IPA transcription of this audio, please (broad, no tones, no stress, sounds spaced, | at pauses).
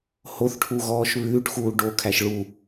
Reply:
h o θ ʈʰ u ɣ ɔː ʃ β ʉː ʈ x uː ɖ o kʰ æ ʃ ɭ u